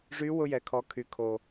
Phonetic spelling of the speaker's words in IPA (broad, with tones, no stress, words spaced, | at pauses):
ʐy˧˥ wʊ˧jɛ˩˧kʰɔ˩˧ kʰy˩˧kʰo˩